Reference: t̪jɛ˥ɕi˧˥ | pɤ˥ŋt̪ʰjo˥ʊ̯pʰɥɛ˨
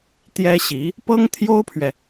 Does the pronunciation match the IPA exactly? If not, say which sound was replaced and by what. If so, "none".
none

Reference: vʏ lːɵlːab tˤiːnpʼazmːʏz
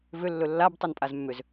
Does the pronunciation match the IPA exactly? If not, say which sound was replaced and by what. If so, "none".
iː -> i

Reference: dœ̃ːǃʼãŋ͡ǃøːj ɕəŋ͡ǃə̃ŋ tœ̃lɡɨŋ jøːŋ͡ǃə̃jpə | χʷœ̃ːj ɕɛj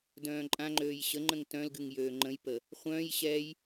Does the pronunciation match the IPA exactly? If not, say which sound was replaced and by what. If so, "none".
none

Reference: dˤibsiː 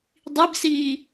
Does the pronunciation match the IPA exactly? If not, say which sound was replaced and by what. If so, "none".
none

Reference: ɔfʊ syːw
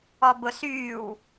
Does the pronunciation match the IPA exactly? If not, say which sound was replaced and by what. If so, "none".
f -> b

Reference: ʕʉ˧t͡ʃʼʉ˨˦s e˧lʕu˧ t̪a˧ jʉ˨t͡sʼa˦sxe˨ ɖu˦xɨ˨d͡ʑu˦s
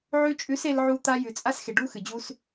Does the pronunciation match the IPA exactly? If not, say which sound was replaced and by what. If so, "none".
none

